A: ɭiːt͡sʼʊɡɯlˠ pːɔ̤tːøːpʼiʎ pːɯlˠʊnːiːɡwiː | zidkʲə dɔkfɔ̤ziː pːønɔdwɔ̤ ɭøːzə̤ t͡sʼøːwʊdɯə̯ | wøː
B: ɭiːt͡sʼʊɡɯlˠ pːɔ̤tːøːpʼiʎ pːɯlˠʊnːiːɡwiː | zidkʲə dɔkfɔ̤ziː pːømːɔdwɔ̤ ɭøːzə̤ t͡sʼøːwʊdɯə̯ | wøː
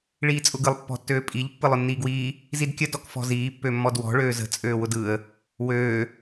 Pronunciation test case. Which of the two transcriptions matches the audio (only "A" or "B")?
B